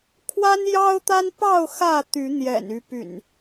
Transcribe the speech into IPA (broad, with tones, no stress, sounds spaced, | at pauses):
kʰ w a˦ n j ɑ˦ ʊ̯ t̪ a˦ n p ɑ˥˨ ʊ̯ x ä˥˨ t̪ y˨˦ n̪ j ɛ̰˨˩ n y˨˦ p y̰˨˩ n